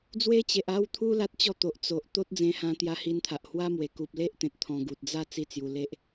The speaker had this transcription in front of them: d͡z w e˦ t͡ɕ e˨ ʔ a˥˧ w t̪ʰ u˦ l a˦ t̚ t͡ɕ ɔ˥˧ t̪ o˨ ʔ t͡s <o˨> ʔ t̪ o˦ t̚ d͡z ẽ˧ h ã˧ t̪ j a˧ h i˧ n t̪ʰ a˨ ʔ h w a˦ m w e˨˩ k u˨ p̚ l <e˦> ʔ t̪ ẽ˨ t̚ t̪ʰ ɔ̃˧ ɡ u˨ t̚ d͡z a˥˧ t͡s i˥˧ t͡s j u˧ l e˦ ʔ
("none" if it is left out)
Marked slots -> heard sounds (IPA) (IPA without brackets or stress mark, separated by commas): o˨, e˦